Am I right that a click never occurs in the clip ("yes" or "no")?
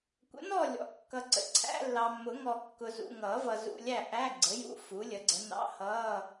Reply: no